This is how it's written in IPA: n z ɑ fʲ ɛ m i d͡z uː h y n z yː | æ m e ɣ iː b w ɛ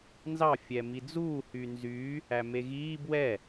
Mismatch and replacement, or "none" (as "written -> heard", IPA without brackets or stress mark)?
none